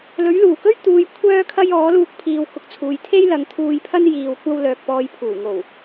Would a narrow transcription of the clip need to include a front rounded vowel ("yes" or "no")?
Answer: yes